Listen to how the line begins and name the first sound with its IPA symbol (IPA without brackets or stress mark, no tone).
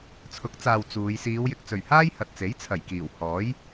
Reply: t͡sʰ